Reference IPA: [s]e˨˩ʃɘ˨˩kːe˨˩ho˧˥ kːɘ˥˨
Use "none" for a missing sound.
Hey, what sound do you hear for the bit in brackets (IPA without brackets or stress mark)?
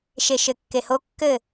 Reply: ʃ